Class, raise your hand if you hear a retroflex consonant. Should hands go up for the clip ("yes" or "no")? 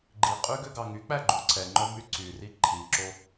no